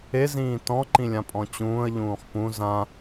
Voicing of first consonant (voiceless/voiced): voiced